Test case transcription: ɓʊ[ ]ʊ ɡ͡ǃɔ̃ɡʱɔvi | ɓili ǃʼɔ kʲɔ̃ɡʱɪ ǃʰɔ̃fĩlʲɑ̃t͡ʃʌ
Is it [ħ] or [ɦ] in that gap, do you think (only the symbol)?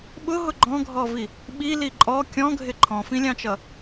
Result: ɦ